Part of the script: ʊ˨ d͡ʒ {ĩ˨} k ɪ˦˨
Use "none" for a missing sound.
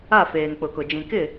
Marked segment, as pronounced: ĩ˨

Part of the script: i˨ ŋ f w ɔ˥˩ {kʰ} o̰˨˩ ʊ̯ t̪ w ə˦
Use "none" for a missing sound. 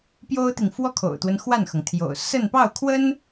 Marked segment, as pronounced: kʰ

